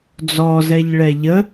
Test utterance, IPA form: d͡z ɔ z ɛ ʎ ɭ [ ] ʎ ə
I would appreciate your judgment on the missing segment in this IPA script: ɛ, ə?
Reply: ɛ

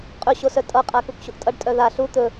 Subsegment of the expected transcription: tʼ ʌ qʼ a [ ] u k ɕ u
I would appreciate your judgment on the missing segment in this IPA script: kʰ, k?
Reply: k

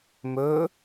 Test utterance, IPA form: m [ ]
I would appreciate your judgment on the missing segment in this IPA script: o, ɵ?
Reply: ɵ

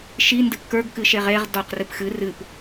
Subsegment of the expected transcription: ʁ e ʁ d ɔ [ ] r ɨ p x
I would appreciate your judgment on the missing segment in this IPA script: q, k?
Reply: q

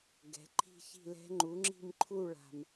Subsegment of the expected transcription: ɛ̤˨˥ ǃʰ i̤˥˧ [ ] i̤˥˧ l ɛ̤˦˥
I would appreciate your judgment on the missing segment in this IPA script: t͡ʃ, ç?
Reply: ç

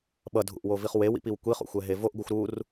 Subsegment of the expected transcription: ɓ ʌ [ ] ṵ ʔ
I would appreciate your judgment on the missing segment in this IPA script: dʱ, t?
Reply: dʱ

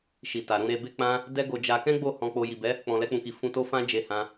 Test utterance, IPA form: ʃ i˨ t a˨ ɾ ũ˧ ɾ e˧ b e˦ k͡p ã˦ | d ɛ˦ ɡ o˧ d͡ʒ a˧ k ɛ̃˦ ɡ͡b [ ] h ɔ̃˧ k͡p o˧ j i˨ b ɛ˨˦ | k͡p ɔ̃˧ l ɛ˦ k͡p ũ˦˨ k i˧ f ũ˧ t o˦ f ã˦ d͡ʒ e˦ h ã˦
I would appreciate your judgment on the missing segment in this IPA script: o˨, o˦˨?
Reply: o˦˨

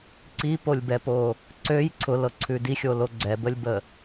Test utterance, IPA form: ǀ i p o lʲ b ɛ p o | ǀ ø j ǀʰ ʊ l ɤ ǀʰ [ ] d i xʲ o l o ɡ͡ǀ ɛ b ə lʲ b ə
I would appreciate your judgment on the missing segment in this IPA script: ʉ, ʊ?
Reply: ʉ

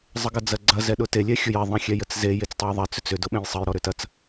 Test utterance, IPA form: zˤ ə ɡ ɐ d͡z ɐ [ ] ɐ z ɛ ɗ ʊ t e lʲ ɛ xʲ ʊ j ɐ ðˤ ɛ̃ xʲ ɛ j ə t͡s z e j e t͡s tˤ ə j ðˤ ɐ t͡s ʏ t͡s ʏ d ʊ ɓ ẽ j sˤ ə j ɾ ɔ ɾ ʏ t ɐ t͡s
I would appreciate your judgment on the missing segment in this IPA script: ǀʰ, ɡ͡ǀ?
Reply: ɡ͡ǀ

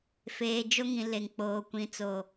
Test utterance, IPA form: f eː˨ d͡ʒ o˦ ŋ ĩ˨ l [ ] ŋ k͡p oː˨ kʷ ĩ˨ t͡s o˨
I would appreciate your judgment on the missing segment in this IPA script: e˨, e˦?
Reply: e˨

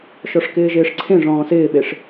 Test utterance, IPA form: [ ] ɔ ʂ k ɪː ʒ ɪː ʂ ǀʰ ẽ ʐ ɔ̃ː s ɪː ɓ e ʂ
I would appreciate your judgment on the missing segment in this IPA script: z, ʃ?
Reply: ʃ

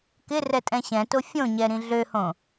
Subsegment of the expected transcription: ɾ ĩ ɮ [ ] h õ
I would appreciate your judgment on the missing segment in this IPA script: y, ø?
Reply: ø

